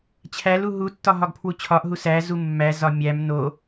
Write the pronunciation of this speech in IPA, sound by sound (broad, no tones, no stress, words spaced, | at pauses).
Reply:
t͡ɕʰælu ɦutːɒ ɦɒɡpʰwut͡ɕʰɒʔɦu sæzu mːæzɒ mʲæm no